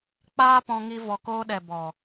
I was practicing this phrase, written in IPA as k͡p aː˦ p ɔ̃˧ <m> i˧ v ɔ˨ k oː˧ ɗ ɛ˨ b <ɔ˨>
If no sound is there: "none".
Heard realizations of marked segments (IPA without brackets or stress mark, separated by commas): ŋ, ɔ˨